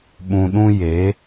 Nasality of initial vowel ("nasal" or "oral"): nasal